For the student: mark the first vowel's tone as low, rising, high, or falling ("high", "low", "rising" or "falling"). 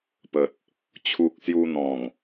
low